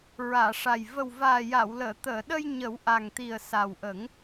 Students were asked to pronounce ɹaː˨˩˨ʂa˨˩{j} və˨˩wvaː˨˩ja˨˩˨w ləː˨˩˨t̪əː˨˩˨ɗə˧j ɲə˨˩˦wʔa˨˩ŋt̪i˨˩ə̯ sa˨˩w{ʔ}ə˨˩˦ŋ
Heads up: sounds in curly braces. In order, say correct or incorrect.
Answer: correct, correct

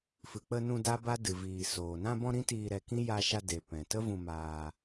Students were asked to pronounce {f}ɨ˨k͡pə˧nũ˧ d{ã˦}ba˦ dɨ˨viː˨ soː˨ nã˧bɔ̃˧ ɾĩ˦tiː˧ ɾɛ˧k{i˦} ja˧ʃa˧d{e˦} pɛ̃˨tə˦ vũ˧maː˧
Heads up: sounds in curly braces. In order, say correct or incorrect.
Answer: correct, incorrect: a˦, incorrect: ĩ˦, incorrect: e˨

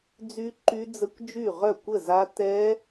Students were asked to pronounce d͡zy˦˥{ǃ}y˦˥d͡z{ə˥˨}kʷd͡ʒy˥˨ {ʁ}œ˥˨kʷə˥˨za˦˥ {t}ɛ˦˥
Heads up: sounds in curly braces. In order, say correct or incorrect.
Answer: correct, incorrect: ə˦˥, correct, correct

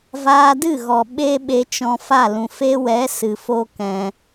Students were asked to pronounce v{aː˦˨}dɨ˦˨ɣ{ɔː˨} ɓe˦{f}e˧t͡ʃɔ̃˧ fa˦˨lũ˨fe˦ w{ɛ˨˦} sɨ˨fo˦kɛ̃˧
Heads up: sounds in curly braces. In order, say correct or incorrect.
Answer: incorrect: aː˧, incorrect: ɔ˨, incorrect: ɓ, correct

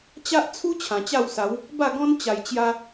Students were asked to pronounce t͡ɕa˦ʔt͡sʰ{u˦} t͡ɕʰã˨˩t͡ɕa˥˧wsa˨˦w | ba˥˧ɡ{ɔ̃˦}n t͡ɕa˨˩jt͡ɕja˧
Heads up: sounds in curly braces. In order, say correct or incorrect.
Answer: correct, correct

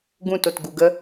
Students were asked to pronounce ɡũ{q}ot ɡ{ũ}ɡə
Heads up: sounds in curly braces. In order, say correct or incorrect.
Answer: incorrect: t, incorrect: u

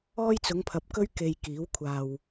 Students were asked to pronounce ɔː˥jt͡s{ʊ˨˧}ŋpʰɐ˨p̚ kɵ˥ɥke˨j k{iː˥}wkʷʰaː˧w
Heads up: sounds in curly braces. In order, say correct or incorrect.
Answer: correct, incorrect: iː˨˥

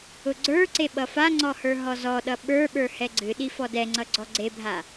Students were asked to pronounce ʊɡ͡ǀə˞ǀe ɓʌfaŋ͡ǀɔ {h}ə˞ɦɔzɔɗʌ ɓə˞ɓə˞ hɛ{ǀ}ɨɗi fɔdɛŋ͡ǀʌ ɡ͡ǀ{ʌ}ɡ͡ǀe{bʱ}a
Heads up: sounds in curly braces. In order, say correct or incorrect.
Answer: correct, incorrect: ɡ͡ǀ, incorrect: ɔ, correct

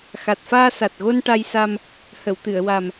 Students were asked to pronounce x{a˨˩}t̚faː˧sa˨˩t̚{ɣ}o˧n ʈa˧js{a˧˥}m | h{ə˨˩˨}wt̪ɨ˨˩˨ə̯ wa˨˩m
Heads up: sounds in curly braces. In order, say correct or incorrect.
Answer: correct, correct, incorrect: a˧, correct

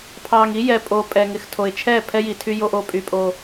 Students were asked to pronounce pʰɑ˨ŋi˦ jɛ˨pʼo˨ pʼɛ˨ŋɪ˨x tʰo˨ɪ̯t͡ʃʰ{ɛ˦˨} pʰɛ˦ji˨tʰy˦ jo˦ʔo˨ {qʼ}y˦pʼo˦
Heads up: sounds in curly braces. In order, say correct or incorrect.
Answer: correct, incorrect: pʼ

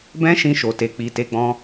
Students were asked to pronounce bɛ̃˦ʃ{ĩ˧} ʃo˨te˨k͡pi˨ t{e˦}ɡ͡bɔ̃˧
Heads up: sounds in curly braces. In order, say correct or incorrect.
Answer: correct, incorrect: e˨˦

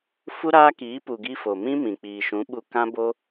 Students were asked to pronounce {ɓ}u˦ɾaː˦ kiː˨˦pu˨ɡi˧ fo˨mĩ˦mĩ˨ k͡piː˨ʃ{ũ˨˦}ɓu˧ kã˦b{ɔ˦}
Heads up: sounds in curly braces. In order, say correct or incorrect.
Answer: incorrect: f, correct, incorrect: o˦

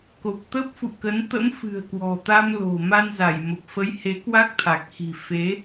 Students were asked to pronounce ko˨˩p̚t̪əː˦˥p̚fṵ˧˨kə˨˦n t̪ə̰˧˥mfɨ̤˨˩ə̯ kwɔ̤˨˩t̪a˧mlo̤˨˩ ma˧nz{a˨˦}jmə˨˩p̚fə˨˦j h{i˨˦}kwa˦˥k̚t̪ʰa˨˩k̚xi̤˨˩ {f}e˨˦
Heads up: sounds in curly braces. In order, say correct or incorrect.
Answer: incorrect: a˧˩, incorrect: e˨˦, correct

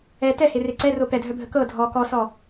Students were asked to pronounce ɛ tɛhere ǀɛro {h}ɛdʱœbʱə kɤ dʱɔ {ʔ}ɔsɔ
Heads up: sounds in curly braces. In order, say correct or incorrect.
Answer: incorrect: p, incorrect: k

